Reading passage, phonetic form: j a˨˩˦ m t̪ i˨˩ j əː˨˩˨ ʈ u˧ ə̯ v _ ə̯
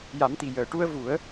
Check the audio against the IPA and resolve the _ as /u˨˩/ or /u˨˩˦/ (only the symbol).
u˨˩˦